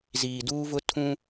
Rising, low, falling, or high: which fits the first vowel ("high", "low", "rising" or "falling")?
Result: low